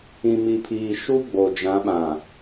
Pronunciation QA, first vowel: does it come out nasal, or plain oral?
nasal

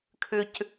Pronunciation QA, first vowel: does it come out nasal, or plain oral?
oral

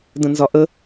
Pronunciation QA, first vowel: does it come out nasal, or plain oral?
nasal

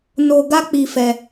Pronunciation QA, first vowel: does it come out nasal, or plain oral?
oral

